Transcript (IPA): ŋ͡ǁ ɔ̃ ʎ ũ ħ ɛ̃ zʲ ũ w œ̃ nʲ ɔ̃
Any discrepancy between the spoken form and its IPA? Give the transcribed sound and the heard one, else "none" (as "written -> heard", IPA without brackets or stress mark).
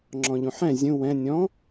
œ̃ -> ɛ̃